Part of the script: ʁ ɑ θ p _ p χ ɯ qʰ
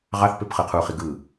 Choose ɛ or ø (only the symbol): ø